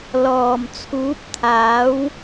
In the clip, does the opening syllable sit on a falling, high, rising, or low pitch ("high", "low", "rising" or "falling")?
low